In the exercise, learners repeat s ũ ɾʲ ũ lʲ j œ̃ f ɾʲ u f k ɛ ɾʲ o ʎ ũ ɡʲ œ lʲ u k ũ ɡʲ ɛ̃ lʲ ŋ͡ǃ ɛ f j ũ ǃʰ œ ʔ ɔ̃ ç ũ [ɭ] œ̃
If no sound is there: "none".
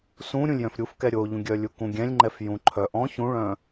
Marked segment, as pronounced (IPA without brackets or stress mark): ɭ